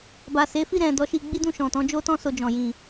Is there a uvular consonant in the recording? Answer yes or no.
no